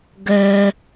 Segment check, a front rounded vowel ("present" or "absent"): present